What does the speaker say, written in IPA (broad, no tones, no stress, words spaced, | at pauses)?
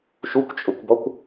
ʃukʷt͡ʃʼʊkʷbɔkʷ